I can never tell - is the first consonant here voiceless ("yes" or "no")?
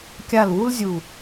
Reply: yes